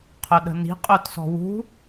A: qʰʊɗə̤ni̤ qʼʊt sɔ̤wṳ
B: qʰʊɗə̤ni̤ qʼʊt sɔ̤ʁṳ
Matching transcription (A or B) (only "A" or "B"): A